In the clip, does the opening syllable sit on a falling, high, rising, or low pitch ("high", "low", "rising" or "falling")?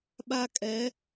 high